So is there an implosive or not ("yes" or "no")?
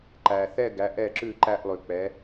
no